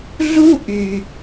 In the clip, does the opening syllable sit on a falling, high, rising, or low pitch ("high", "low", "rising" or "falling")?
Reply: high